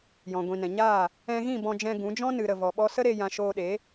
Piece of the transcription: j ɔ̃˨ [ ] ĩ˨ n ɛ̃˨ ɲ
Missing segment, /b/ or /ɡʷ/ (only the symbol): ɡʷ